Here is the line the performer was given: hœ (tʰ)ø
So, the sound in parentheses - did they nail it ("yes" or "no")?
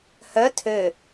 yes